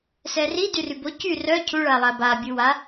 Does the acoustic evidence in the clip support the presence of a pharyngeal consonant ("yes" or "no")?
no